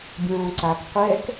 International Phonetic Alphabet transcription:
bʲõːǀak qʷɛk

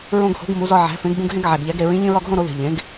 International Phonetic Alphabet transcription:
ɹõ˧ɡho̤˩˥ɡ mu˩˥zɒ˧ ʕæ̤˩˥fẽ˩˥ɡbũ˧ɡ ɦẽ˧ɡʕæ˨˩ɡʎæ˩˥ɡ ɾe˨˩ɹĩ˩˥ ʎĩ˧ɹɒ˧ɡɦõ˧ ɾo˩˥ðe̤˨˩ ʎẽ˩˥ɡ

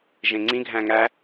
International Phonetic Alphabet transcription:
ʒẽŋ͡ǀĩ ɡʱæ̃ŋæ

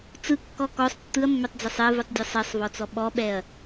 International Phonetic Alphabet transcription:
t͡sɯkːɔ kɔsˤ tːɯɐ̯mːɛtˤd͡zɛsˤ ɛvɯtˤdʲɯ sˤɛsˤvɔt͡sɔ ɓɔɓɛɐ̯

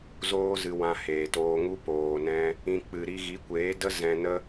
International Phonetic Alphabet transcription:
zoː˦zɨ˧ wã˧heː˨toː˧ŋu˦ poː˨nɛ̃˧ | ĩ˧ k͡pɨ˨ɾi˧ ɣi˨˦kʷeː˨˦də˦ zɛ̃˧nə˦

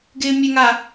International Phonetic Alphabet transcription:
ɡɪːmʲɛŋa

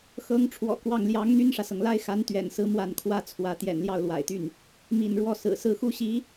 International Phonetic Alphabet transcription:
xɤ˧˥ŋ ʈ͡ʂʰwɔ̰˨˩kwɑ˥˩ŋ ljɑ˧˥ŋn̪y˥nʂä˨sɤ˩ŋ la˥ɪ̯xa˧˥n t̪ɥɛ̰˨˩nsɹ̩˧˥ mwa˥˩nkʰwä˥t͡sʰwä˧˥ t̪jɛ̰˨˩nljɑ˥˩ʊ̯lwa̰˨˩ɪ̯t̪y˥˩n | mḭ˨˩n ɻwɔ˥ sɹ̩˨˩sɹ̩˥˩xu˥ɕi˧˥

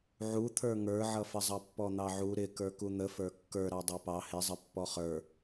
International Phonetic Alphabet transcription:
ʕut̪ʰə˞ ŋə˞ʕʌfəzˤɑ pːɔn̪ɑʕu ɾɪ kə˞kun̪əfə˞ kːə˞ɾɑ dˤɑpɑ hɪzˤə pːɔχə˞

